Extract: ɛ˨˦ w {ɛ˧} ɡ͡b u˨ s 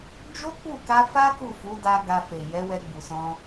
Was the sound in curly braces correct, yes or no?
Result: yes